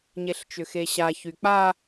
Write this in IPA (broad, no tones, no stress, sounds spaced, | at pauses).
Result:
ɲ e ɬ t͡ʃ ʏ x e ɕ a ç y k͡p a